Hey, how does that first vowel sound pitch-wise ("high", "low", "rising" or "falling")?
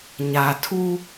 low